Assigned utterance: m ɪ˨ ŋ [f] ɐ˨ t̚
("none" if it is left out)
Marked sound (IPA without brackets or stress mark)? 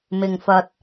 f